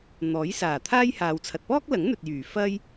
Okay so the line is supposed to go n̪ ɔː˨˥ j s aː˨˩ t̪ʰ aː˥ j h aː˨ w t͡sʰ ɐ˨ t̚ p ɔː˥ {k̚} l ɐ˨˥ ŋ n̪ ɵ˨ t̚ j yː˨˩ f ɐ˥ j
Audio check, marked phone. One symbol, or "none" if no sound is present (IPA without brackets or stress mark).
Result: k̚